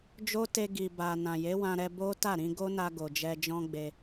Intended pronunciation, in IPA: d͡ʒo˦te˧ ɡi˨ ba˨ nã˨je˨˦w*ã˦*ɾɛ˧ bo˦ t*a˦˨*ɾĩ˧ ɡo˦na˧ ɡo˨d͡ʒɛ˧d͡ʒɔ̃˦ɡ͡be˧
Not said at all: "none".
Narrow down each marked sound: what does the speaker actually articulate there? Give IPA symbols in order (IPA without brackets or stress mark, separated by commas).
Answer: ã˧, a˦˨